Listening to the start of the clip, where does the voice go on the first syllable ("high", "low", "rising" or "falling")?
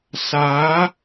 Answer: rising